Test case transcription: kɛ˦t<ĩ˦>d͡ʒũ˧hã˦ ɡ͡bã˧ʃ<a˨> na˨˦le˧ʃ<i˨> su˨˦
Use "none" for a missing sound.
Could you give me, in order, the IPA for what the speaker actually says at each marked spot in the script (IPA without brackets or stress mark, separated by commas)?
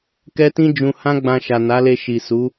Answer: ĩ˦, a˨, i˨